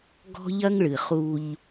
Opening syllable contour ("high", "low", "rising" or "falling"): high